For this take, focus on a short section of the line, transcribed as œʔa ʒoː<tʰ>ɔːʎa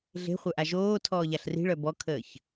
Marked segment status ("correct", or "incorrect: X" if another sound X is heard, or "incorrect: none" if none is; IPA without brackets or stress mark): correct